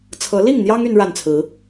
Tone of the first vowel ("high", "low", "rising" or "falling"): rising